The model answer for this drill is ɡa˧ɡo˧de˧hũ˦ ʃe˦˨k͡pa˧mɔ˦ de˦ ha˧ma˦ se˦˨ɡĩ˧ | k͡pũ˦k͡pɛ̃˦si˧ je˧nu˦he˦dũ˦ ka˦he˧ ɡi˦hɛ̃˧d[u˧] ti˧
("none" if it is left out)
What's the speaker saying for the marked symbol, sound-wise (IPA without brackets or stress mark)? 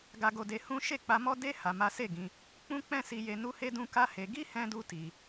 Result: u˧